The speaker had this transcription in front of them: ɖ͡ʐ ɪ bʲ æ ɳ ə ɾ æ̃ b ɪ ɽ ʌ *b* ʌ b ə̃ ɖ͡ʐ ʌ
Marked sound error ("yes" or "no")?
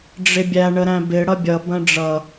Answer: yes